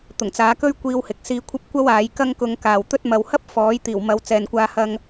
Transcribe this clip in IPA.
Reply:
t̪ ʊ˨˩ ŋ t͡s aː˨˧ k ɵ˥ ɥ kʷ iː˧ w h ɪ˨ k̚ s iː˧ kʷʰ ɐ˥ p̚ kʷ ɐ˥ w aː˨˧ j k ɐ˥ ŋ k ʊ˧ ŋ k aː˨ w t̪ ɵ˥ t̚ m ɐ˨ w h ɐ˥ p̚ f ɔː˨˥ j t̪ iː˨˩ w m ɐ˨˧ w t͡s ɛː˨ n kʷ aː˧ h ɐ˧ ŋ

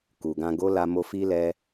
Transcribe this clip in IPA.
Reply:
k u˨ ɡ ã˧ ɡ o˦ l a˧ m o˧ f i˧ l ɛ˧

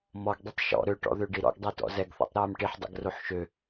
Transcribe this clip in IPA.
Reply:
m ɔ ɡ dˤ i tˤ ʃ ɔ̰ ɾ ø ʈ ɔ̰ ð ø ɖ i ɾ ɔ̰ ɡ dˤ ɛ t ɔ̰ z ɛ ɡ θ ɔ̰ tˤ ɾ ɛː m ʈ i ħ dˤ ɛ̰ ɡ r o ħ ʃ ø

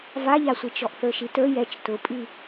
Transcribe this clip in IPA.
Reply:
v a ʎ a sʷ i t͡ʃ ɔ ʔ θ ə˞ ʃ i t ə˞ j ɛ t͡ʃ t ʊ pʼ i

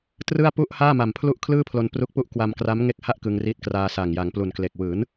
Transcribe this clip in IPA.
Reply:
t r ɯ˥˩ a̯ p u˥˩ ʔ h aː˥˩ m a˨˩ m pʰ l u˥˩ ʔ kʰ l ɯː˥˩ pʰ l o˧ n p r u˦˥ k̚ p u˦˥ ʔ k w a˧ m k r a˦˥ m ŋ e˦˥ k̚ h a˥˩ ʔ k ɯ˧ ŋ r iː˦˥ t̚ k r aː˧ s aː˨˩ ŋ j a˩˦ ŋ p l u˨˩ n k l e˨˩ k̚ w ɯː˩˦ n

